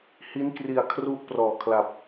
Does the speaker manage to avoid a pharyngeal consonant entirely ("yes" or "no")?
yes